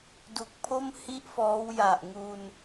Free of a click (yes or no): yes